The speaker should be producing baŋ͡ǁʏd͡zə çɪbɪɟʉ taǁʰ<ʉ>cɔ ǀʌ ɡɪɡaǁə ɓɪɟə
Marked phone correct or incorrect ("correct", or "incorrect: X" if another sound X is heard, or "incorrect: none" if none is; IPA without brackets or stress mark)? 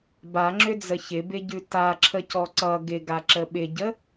incorrect: ə